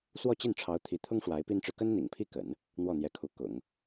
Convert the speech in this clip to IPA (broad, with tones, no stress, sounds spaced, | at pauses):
s w ɔ˥˧ t͡ɕ i˥˩ n ʈ͡ʂʰ ɑ˧˥ ʊ̯ t̪ʰ i˧˥ t̪ʰ ʊ˥ ŋ ʂ w a˧˥ ɪ̯ p i˥ n ʈ͡ʂ ɻ̩˨ k ə˥ n n̪ ḭ˨˩ ŋ pʰ i˥˩ k ə̰˨˩˦ n | n̪ w ɔ˥˩ n̪ j ɛ˧˥ kʰ u˧˥ k ʊ̰˨˩˦ ŋ